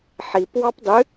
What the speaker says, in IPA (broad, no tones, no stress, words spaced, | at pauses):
ħip wɑpdˤɨ